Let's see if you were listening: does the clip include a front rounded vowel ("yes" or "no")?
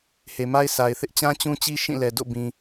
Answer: no